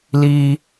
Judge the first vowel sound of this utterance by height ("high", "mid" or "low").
high